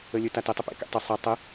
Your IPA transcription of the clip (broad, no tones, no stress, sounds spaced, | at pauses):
ə lʲ ɵ t a t ə tˤ ɘ p ḛ k ḛ tˤ ɵ sˤ ɛ tˤ ə